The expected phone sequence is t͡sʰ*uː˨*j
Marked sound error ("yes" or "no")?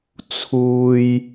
no